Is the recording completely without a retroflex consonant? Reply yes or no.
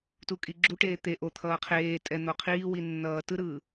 no